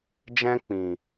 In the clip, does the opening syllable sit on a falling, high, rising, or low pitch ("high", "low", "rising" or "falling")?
high